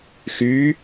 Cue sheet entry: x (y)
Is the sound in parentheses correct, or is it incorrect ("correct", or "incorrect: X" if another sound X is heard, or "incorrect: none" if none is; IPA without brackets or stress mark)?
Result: correct